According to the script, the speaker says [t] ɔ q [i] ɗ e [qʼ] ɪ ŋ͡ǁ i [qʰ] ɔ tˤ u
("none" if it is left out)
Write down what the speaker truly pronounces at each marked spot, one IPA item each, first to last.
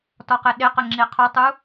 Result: t, e, q, qʰ

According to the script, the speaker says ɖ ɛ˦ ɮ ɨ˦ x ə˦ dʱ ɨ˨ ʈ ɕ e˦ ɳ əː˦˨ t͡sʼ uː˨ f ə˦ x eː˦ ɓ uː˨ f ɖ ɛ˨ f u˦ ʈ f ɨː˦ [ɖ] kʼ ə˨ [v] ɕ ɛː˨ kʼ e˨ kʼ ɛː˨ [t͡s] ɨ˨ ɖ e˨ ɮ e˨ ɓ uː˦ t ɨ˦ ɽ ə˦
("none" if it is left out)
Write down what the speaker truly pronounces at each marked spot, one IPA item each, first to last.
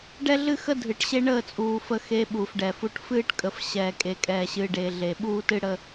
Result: ʈ, f, ɕ

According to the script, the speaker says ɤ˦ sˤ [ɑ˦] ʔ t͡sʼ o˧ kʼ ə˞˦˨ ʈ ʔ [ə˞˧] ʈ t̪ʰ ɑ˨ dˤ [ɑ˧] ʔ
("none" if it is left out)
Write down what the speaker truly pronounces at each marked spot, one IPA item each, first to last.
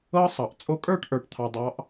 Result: ɑ˨, ə˞˨, ɑ˧

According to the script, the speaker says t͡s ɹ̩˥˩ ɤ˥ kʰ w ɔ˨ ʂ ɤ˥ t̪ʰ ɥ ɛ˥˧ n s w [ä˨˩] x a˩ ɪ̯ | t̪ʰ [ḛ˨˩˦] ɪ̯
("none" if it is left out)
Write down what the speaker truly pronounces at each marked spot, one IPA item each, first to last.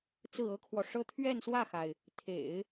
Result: ä˥˩, ḛ˨˩˦

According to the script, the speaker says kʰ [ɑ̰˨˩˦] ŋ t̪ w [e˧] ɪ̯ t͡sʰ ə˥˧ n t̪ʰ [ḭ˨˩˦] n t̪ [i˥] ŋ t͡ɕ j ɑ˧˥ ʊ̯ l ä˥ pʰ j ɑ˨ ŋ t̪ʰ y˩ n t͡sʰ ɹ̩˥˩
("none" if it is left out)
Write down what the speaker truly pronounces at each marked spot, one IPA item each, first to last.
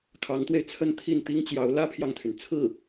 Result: ɑ˧˥, e˧, i˥˩, i˥

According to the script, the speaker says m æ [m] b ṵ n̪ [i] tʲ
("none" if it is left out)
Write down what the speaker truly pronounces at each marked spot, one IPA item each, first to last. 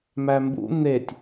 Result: m, e

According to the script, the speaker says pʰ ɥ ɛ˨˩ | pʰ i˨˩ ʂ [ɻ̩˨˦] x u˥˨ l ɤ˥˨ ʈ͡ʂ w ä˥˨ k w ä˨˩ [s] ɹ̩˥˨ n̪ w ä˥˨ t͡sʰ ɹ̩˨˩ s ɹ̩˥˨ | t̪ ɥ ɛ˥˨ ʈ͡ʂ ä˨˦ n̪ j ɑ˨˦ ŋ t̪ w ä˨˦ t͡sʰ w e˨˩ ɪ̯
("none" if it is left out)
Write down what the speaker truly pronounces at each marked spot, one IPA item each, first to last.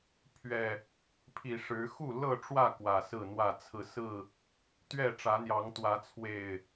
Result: ɻ̩˨˦, s

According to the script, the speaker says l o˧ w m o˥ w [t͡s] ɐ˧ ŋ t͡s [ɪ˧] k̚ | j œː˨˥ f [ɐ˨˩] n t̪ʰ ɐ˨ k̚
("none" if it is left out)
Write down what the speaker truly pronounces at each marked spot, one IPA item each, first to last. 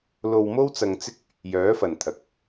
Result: t͡s, ɪ˥, ɐ˨

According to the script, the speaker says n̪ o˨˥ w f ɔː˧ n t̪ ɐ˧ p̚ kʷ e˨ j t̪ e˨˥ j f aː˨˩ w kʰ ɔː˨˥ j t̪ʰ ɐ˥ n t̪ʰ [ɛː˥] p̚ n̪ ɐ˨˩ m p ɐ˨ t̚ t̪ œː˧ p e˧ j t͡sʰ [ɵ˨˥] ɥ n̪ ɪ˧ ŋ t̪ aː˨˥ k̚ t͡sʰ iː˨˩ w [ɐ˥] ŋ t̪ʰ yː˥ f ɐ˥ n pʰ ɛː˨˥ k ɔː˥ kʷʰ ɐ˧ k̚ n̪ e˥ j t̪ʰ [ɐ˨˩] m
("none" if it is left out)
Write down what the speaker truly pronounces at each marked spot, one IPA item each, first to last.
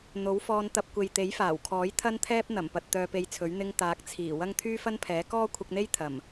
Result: ɛː˥, ɵ˨˥, ɐ˥, ɐ˨˩

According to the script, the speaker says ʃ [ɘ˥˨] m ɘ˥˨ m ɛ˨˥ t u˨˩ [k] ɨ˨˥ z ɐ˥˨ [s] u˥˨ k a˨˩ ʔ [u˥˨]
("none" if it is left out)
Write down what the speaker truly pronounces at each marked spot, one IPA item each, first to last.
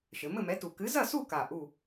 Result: ɘ˩˧, k, s, u˥˨

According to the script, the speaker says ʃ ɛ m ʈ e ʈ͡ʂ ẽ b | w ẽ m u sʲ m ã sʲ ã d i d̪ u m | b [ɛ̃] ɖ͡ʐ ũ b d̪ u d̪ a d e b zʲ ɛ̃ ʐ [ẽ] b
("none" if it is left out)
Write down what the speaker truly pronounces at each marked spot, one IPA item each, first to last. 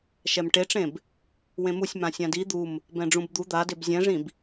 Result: ɛ̃, ĩ

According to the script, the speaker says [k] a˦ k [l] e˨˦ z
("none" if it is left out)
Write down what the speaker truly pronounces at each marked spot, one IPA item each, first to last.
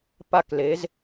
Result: p, l

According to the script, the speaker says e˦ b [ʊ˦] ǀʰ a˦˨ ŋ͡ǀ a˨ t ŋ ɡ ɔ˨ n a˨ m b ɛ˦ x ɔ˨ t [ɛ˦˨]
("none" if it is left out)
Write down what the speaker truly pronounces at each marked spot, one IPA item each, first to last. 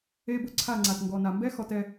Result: ʊ˦, ɛ˦˨

